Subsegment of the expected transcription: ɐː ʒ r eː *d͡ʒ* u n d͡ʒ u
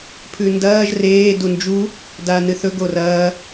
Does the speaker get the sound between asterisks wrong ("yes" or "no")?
yes